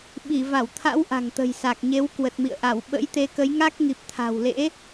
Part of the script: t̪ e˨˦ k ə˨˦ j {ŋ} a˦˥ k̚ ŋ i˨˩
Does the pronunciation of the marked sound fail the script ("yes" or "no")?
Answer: no